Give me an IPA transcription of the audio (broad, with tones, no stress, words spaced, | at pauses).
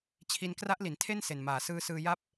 t͡ɕʰi˧n kra˦˥ʔli˩˦ntʰe˥˩n se˨˩nmaː˨˩ sɯː˧sɯː˧ ja˥˩p̚